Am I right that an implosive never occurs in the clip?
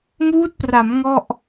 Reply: yes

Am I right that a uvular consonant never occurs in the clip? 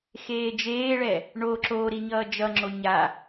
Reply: yes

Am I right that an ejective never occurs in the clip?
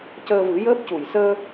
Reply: yes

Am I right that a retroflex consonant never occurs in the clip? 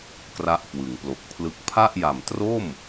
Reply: yes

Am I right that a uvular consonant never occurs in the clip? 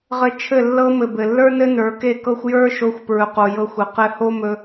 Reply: no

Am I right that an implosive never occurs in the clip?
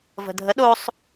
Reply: no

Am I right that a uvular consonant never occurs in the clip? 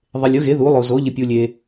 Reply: yes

